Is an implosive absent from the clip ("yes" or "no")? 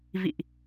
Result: yes